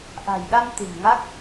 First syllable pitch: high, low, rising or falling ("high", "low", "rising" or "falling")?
low